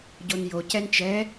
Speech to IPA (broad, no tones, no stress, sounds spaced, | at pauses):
ɟ o n j o c ɛ n t͡ʃ ɛ